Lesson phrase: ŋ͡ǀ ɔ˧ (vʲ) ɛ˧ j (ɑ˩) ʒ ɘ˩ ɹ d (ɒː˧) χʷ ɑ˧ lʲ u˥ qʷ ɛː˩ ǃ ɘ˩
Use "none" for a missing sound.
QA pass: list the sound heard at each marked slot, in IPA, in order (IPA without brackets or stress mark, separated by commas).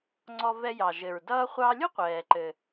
v, ɑ˩, ʌː˧